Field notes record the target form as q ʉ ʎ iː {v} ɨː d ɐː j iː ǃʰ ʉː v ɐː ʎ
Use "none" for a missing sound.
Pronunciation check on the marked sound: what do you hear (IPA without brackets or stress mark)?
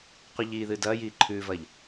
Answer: ð